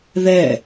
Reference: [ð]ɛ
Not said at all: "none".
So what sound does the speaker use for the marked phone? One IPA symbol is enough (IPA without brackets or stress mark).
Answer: ð